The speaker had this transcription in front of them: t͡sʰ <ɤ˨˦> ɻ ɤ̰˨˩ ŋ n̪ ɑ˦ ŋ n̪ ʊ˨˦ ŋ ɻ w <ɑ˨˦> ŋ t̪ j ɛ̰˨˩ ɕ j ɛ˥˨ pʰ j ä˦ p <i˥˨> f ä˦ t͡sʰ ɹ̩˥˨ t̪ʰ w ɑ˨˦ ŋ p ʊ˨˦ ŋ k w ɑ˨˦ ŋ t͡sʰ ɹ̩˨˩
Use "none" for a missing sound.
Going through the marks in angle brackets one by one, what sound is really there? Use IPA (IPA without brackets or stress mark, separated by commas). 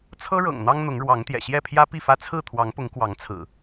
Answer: ɤ˦, ɑ˨˦, i˥˨